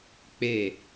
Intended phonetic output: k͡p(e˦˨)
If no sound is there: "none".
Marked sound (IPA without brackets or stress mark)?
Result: e˦˨